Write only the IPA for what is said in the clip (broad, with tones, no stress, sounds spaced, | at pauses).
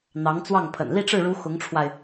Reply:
n̪ ɑ˧˥ ŋ t͡s w ɑ˥˩ ŋ pʰ ə̰˨˩ n l i˥˧ ʈ͡ʂ ɻ̩˥˩ ɻ u˧˥ x ʊ˧˥ ŋ ʈ͡ʂʰ w a˧ ɪ̯